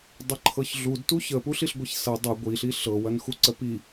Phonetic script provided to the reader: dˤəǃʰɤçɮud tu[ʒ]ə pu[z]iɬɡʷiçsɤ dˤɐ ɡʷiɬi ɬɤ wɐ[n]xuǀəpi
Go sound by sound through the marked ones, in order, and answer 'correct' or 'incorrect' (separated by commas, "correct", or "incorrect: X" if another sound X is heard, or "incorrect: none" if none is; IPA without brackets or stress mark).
incorrect: ç, incorrect: ɬ, correct